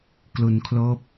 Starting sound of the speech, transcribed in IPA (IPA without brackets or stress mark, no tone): k